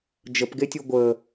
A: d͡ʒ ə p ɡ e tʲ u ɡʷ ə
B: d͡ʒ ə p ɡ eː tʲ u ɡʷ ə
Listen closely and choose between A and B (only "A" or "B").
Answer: A